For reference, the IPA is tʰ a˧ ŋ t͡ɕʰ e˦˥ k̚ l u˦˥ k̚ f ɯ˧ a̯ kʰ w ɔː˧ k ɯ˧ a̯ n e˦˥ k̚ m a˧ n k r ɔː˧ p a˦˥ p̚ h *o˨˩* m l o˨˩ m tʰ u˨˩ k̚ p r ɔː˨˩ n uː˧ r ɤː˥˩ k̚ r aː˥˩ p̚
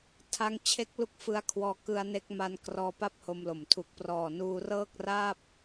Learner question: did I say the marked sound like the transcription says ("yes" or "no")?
no